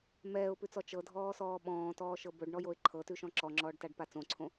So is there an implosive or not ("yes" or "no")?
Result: yes